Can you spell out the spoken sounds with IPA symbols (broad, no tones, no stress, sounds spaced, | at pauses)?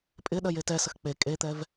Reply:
pʼ ɪ ɗ ɜ j e t ɛ s ə x k͡p e kʼ e t̪ ɛ v